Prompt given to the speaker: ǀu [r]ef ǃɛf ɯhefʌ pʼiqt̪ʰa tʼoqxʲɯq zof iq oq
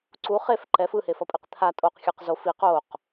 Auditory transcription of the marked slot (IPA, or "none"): χ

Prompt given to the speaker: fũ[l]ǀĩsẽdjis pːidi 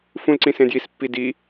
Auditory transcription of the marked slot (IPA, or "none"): l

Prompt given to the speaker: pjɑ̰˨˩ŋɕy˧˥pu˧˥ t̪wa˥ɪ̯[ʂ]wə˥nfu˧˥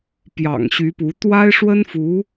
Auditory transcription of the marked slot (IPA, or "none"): ʂ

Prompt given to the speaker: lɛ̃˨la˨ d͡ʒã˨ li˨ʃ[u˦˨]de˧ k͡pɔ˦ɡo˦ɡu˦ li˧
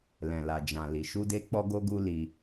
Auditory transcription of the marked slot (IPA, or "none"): u˧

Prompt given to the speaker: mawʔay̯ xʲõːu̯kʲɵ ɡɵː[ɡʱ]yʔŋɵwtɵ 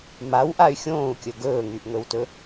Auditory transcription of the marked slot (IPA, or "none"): ŋ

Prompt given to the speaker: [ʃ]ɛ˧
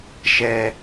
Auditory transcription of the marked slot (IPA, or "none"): ʃ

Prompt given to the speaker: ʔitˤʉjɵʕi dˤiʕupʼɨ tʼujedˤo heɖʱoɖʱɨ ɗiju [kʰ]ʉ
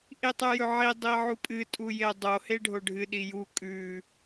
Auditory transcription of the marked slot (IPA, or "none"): kʼ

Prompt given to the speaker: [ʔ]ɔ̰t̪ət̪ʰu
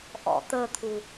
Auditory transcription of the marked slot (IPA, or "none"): ʔ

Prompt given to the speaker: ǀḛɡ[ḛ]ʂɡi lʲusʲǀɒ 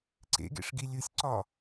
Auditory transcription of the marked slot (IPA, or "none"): ḛ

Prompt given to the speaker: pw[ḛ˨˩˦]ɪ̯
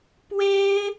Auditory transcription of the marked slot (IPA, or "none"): e˥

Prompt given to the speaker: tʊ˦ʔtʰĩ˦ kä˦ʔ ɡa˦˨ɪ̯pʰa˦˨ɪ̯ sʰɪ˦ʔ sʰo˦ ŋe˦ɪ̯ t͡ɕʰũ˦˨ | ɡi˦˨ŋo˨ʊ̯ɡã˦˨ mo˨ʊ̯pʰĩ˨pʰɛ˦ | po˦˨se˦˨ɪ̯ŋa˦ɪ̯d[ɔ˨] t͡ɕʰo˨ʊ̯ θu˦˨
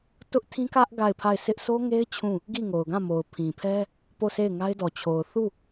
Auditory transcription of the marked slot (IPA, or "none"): ɔ˨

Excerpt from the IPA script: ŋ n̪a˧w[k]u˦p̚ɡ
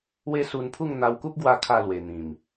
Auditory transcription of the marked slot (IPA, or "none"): k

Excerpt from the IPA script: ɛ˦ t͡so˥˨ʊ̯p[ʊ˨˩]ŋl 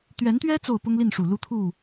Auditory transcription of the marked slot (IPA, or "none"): ʊ˦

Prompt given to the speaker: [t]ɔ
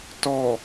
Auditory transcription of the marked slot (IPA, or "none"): t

